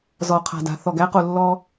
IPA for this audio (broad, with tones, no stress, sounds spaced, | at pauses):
z ɔ˨ qʰ a̤˨ d a̤˨ θ ɔ˨ ɡ æ˦ q o˨ lː ɔ˦